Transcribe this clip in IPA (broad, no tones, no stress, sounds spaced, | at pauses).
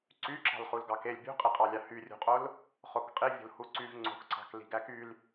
ǀ y ǁ ɑ̤ l χ u l ɡ ɑ k e lʲ bʲ ṳ qʼ i qʼ ɑ lʲ ɑ h y rʲ ṳ qʼ o l | χ o k qʼ i vʲ o̤ l h u ǀ y v ŋ͡ǀ o̤ k ǀ ɑ̤ k l i̤ ɡ æ k y l